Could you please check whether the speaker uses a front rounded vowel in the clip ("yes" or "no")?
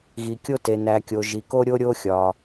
no